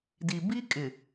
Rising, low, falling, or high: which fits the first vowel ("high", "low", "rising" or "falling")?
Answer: low